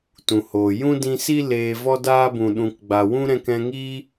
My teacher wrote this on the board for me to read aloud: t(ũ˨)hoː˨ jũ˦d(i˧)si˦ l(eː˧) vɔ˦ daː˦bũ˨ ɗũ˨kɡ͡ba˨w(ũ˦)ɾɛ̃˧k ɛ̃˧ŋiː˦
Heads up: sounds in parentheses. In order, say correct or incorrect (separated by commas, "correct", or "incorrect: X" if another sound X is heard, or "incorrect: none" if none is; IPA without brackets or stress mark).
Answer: correct, incorrect: ĩ˧, correct, correct